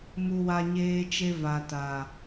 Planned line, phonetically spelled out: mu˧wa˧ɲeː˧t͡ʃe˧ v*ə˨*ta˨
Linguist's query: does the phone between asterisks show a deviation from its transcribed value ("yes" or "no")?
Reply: yes